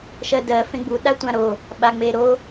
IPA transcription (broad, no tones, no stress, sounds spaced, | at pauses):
ʃ ɜ d ɜ f ẽ ɡ͡b u ɗ a tʷ ã ɾ o | ɓ a ŋ͡m e ɾ o